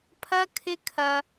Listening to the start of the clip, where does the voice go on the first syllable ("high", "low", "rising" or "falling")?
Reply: high